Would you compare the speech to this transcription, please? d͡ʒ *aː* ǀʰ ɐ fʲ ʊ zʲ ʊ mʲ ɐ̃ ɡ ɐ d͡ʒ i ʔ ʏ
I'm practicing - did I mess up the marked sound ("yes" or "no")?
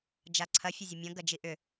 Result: yes